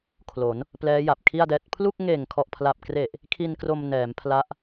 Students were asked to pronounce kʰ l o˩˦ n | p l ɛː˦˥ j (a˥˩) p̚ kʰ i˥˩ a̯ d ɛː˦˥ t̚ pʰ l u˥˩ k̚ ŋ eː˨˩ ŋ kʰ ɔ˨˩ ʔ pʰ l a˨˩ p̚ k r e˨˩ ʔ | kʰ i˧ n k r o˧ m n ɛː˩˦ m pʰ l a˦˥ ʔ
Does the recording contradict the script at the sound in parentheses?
yes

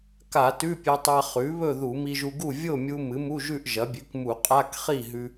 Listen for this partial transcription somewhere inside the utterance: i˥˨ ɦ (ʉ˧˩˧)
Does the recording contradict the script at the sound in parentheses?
yes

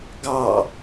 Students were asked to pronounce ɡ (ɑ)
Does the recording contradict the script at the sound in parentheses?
no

